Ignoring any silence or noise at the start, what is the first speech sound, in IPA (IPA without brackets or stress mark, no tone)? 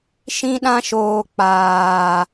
ʃ